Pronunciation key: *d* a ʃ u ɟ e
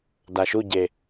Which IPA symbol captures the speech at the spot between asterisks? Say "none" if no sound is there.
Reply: d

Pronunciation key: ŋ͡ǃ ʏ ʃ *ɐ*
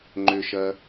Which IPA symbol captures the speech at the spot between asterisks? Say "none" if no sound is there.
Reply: ɐ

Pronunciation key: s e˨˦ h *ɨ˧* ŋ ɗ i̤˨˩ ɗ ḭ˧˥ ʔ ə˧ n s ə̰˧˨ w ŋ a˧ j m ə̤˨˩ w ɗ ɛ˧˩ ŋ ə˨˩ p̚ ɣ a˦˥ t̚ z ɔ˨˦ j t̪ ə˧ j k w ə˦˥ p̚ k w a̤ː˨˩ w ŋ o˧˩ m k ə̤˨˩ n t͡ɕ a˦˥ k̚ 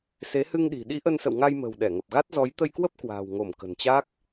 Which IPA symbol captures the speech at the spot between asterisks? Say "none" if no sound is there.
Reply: ɨ˧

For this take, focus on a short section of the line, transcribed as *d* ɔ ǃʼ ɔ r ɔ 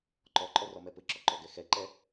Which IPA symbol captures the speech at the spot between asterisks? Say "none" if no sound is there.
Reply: ǃ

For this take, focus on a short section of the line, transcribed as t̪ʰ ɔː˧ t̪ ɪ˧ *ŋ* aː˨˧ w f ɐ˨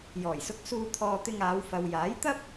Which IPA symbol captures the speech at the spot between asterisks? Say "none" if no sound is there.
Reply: ŋ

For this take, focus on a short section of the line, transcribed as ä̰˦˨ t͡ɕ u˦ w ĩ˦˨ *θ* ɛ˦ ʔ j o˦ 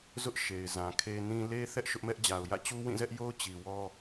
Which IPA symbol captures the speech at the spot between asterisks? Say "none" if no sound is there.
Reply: z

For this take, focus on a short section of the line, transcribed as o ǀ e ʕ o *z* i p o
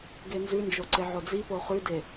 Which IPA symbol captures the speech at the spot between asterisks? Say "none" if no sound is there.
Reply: d͡z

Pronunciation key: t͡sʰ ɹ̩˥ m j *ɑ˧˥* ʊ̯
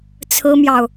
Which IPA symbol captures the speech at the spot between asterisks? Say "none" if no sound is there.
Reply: ɑ˨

